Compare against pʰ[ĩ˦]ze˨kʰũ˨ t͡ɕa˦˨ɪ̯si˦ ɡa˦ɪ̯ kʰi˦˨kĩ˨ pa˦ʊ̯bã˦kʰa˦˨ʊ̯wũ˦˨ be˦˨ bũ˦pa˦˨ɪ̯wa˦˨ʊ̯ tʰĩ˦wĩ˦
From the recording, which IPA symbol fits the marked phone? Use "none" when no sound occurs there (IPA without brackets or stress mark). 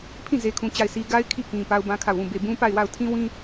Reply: ĩ˦˨